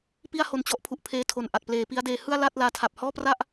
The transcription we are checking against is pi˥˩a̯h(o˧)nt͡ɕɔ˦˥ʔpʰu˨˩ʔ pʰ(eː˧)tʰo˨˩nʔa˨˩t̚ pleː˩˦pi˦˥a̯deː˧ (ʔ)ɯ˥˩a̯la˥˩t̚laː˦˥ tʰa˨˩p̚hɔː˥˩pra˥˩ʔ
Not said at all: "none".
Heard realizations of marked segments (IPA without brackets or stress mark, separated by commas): o˧, eː˧, h